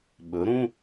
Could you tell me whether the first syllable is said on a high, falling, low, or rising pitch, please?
rising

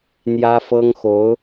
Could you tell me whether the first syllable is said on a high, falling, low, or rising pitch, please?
high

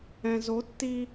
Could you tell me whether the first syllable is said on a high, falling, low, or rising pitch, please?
low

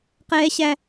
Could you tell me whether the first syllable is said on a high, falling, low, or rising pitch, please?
high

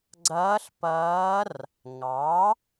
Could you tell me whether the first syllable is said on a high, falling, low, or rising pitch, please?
rising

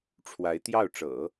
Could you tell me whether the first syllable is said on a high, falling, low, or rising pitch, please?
rising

